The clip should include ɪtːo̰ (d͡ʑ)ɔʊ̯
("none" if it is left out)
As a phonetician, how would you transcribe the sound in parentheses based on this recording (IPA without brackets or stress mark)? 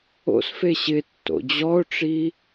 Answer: d͡ʑ